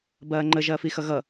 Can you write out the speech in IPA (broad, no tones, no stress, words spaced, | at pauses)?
bɐːŋ͡ǃə ʒɐːfixʌɣʌ